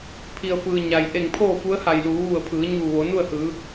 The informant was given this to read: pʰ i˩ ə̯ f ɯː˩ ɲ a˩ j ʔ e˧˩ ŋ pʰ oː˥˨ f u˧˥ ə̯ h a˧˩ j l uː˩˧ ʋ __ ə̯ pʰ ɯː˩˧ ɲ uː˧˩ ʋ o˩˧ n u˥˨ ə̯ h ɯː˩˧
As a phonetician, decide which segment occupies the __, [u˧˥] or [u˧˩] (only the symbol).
u˧˩